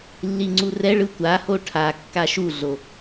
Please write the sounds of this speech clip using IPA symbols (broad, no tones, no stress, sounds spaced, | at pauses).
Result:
lː i ŋ͡ǀ u r ɛ ɭ ɯ tʷ a h o ʈʰ a kː a ʃ u ɮ o